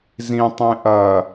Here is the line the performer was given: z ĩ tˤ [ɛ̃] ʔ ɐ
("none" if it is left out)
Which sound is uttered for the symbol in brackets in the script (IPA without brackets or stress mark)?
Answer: ẽ